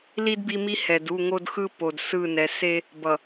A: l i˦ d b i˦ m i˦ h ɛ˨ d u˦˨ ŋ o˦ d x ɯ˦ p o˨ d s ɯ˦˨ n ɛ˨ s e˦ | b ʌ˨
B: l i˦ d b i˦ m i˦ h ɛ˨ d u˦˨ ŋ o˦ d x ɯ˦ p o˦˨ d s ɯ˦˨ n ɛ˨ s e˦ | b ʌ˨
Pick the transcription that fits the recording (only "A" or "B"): A